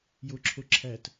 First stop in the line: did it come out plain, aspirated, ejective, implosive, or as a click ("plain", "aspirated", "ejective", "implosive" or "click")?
click